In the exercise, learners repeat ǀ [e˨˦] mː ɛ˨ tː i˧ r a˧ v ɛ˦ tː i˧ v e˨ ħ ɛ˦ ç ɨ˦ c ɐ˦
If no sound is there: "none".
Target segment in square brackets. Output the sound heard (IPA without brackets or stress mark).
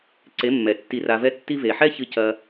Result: e˨˦